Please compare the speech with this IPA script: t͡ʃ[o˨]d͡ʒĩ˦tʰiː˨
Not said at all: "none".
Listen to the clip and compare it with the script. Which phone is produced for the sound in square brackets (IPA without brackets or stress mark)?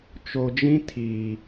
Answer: o˨